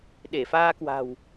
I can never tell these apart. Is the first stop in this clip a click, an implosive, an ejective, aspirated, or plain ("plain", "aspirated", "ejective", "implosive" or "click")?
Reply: implosive